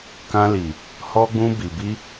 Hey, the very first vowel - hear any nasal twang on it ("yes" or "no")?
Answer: yes